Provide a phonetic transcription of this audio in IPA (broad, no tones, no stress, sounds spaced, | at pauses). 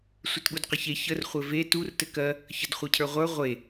sʷ ɘ t ɠ u d q ɘ ç e ç ə r χʷ ɘ v e t u r t ɘ k ɜ | ç ə d χʷ ɜ cʰ ə˞ ʁʷ ə˞ ʁʷ e